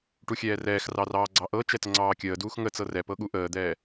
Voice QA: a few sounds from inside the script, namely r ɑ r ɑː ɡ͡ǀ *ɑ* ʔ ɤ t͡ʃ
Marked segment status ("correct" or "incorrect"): correct